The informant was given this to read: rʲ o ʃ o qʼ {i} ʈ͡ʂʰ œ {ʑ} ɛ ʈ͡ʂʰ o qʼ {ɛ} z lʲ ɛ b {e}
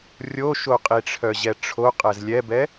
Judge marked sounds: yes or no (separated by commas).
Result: yes, yes, yes, no